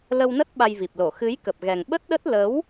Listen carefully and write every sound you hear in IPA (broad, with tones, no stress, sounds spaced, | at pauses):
l ə˧ w n ə˦˥ t̚ ɓ a˧ j v i˨˩ p̚ l o˧˩ x ɨ˨˦ j k ə˨˩ p̚ ɣ ɛ˨˩ ŋ ɓ ə˦˥ t̚ ɗ ə˦˥ t̚ l ə˨˦ w